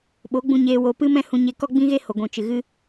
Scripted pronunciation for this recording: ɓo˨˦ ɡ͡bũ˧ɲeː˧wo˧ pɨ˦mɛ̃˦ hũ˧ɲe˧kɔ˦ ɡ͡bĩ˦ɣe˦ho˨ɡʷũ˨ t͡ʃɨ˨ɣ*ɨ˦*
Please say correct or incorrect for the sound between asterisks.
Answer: correct